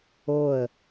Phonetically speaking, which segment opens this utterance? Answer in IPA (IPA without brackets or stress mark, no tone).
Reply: o